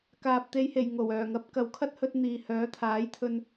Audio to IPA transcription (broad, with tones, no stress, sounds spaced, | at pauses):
k aː˨ p̚ t̪ e˨˧ j h e˨˩ j ŋ o˨˩ w œː˨˩ ŋ ɐ˨˥ p̚ k ɐ˨ w kʰ ɐ˥ t̚ h ɵ˧ t̚ n̪ iː˨ h œː˨˥ t̪ʰ aː˨˥ j t̪ʰ ɵ˧ n